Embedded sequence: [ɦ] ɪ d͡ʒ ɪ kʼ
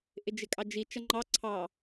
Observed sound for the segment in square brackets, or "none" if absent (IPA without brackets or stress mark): ʔ